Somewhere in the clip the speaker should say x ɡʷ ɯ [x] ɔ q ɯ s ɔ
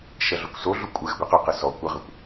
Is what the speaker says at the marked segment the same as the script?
no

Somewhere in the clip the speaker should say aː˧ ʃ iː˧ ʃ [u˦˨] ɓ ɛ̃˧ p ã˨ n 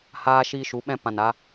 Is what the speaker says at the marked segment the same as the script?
no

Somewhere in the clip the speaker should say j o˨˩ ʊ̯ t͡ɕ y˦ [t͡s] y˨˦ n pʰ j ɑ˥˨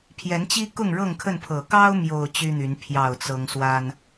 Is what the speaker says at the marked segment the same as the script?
no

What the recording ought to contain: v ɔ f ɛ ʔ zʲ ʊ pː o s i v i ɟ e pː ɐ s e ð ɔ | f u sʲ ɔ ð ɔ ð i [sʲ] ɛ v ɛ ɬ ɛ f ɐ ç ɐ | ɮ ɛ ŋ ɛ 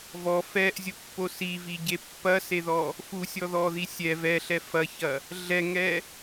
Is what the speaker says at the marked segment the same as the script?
yes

